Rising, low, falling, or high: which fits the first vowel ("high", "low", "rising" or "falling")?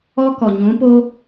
high